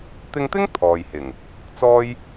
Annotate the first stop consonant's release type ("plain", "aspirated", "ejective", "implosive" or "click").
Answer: plain